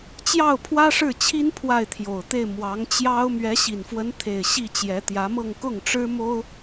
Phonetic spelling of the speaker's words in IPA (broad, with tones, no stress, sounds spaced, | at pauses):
t͡ɕ j ɑ˥˩ ʊ̯ pʰ w ä˥ ʂ ɻ̩˥˩ t͡ɕʰ i˥ n pʰ w a˥˩ ɪ̯ t̪ʰ j o˨˩ ʊ̯ t̪ e˥˩ ɪ̯ m w ɑ˧˥ ŋ t͡ɕ j ɑ˥ ʊ̯ m ɥ ɛ˧˥ ɕ i˨˩ n f w ə˧˥ n t̪ʰ e˥˧ ɪ̯ ɕ i˥˩ t͡ɕ j ɛ˧˥ t̪ j ä˧˥ m ɤ˥˧ ŋ k ʊ˥˩ ŋ ʈ͡ʂ ɻ̩˥ m o˥ ʊ̯